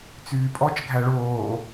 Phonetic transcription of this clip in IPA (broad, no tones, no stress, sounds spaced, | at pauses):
t͡s yː pʼ ɔ t͡ʃ ɡʱ æ ɭ oː